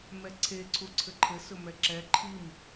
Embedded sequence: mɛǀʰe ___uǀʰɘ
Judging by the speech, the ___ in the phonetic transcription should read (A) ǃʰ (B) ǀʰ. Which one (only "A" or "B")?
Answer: B